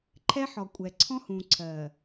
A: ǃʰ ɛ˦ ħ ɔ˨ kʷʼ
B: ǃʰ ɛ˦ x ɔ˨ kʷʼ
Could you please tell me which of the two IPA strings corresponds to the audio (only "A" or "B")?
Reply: A